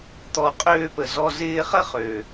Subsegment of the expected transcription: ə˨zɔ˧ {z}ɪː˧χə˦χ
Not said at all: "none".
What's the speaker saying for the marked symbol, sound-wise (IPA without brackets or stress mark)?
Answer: z